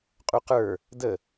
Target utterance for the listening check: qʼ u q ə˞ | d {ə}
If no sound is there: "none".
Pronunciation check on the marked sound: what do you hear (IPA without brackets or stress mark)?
ə